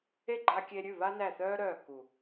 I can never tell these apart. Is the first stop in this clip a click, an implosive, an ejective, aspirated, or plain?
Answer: click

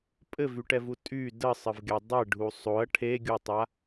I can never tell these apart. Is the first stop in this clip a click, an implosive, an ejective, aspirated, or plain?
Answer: ejective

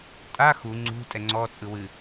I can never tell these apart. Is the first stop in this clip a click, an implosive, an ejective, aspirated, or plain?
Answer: ejective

